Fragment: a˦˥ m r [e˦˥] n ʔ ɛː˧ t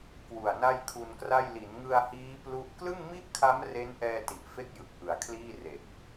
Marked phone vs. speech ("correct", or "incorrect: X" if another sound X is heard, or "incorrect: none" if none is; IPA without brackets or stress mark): correct